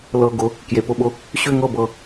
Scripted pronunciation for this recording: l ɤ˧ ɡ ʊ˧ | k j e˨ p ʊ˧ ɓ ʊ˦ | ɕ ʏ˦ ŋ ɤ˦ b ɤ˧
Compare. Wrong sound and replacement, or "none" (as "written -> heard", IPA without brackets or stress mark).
none